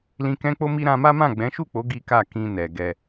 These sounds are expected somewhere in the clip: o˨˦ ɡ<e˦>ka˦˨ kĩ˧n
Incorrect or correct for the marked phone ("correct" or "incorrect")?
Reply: incorrect